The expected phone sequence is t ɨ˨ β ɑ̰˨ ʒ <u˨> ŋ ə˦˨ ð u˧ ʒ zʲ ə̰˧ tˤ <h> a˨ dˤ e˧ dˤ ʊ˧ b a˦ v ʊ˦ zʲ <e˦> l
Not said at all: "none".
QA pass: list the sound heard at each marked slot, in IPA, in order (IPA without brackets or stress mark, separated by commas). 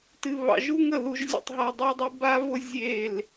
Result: u˦, ɦ, e˦˨